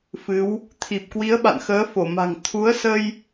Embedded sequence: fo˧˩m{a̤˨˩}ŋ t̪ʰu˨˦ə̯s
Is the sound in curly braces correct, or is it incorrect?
correct